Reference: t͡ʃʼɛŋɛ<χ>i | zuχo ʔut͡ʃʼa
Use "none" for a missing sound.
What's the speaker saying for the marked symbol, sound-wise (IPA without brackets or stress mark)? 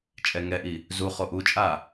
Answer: ʔ